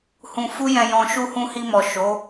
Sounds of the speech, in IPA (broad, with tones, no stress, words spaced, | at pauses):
hũ˧ fu˦jɛ̃˧jɔ̃˧ ʃu˧ hũ˧hi˧mɔ˨ ʃo˨˦